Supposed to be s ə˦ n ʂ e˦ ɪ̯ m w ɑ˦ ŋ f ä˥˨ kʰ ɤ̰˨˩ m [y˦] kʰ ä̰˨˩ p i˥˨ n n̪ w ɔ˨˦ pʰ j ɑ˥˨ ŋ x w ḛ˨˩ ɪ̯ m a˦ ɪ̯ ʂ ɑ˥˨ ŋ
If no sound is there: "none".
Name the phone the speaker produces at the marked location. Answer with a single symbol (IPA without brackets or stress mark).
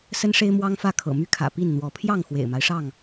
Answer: y˦